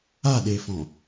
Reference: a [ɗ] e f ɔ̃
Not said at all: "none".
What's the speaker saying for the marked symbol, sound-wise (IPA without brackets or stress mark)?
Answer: ɗ